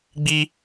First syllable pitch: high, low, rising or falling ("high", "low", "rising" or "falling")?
high